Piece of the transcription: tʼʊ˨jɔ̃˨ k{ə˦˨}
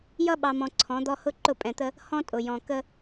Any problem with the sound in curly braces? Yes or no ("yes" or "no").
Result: yes